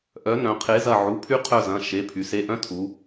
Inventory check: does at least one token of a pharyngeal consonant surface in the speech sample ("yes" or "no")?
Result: yes